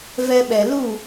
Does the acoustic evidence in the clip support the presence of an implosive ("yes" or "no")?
yes